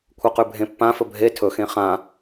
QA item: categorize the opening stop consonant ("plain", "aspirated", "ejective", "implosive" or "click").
aspirated